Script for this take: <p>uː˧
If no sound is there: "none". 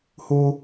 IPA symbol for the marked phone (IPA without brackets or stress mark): h